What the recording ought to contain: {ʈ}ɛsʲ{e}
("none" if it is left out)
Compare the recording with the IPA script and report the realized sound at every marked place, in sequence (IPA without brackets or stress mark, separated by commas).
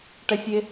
ʈ, e